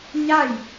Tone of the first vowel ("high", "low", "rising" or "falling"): falling